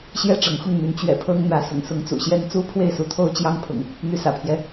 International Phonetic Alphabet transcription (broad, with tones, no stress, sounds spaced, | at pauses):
ɕ j ɛ˥˨ ʈ͡ʂ ɤ˨˦ ŋ x ʊ˥˨ ŋ n̪ y˨˦ n t͡ɕ ɥ ɛ̰˨˩ pʰ ɤ˦ ŋ n̪ ä˨˦ s ʊ̰˨˩ ŋ s ʊ˨˦ ŋ t͡s ṵ˨˩ ɕ j ɛ˦ n t͡s u˦ pʰ w e˥˨ ɪ̯ s u˨˦ t̪ʰ o˦ ʊ̯ t͡ɕ j ɑ˦ ŋ pʰ ʊ̰˨˩ ŋ | n̪ y˨˦ s ä̰˨˩ pʰ j ɛ˦